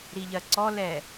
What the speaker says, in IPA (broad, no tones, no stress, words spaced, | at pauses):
ɾiʎɜǀɔlɛ